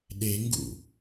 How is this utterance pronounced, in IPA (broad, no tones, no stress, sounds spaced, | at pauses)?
ɗ e ŋ ɡ ṵ